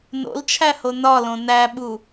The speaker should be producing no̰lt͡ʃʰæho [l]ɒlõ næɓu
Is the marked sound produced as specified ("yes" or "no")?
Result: no